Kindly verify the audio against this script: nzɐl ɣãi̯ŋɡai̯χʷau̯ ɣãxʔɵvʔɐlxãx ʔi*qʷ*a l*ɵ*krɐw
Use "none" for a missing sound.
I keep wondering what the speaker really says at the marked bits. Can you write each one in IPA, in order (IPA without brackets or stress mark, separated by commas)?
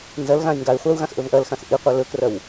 qʷ, ɵ